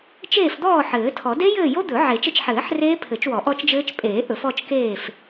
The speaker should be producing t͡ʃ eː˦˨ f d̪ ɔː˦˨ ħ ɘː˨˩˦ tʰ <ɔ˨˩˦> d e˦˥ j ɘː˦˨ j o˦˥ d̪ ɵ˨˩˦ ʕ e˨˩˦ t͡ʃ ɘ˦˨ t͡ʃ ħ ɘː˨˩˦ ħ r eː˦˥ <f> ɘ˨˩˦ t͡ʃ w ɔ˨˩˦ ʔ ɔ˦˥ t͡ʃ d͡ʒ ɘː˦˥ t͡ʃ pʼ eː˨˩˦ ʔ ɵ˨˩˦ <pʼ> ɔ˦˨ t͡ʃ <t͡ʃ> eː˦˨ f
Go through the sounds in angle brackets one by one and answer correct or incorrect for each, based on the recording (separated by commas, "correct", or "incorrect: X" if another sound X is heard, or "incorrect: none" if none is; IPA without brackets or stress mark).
correct, incorrect: pʰ, incorrect: f, incorrect: k